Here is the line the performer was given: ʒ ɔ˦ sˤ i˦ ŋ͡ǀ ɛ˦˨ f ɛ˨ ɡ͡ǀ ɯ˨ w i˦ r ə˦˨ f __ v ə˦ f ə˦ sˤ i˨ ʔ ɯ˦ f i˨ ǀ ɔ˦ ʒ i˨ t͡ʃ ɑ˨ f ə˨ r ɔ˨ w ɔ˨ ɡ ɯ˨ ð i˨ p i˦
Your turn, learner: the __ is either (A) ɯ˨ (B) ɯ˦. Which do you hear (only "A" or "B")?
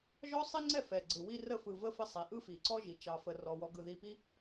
A